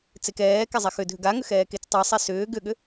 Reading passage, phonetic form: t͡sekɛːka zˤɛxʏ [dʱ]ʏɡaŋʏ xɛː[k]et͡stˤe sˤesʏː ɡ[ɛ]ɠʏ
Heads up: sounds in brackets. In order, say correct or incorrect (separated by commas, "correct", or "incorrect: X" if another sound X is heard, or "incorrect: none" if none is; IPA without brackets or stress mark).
correct, correct, incorrect: ʏ